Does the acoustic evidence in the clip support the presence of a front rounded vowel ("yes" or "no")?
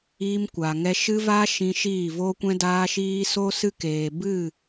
no